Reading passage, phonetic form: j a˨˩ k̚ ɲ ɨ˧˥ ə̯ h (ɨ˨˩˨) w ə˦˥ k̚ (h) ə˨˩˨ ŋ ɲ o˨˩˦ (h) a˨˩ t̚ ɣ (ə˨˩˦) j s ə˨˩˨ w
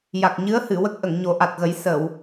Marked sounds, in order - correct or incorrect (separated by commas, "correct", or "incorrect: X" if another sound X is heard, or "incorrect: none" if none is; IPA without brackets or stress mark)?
correct, incorrect: ʔ, incorrect: ʔ, correct